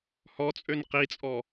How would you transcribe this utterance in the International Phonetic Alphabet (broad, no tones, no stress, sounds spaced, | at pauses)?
h ɔ t͡sʼ ø n q i t͡sʼ ɔ